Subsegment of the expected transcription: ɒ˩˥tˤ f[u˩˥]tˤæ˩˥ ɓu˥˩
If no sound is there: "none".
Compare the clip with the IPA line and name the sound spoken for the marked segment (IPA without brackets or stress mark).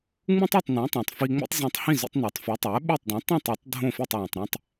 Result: u˩˥